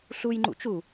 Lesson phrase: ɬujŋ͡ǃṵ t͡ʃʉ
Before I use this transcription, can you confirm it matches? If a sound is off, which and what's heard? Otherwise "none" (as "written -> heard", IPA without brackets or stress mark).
ʉ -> u